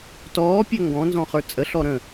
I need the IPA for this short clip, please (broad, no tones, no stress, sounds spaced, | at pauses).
t ɔː pʲ ø ŋ ɡ ɔ̃ n z ɔ̃ χ ə˞ t͡sʼ ə ɬ ɔ ɾ ə̃